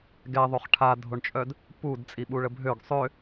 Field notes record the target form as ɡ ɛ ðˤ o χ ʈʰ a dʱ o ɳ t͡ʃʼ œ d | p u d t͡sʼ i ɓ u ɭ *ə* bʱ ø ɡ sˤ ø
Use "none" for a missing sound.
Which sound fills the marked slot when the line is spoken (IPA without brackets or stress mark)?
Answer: ə